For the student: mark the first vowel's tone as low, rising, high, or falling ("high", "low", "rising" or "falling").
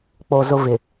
low